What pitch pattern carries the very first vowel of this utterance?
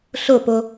falling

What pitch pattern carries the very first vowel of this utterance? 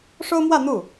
high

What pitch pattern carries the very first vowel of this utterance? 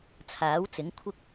rising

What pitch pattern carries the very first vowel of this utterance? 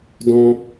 high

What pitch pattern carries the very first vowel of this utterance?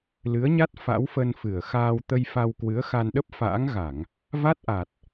rising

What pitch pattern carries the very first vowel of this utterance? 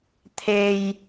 low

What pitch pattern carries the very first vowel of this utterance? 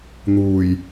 low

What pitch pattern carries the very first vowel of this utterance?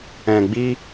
low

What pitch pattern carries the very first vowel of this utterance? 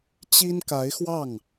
high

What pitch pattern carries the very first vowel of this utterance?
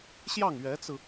falling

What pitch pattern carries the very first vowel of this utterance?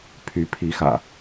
rising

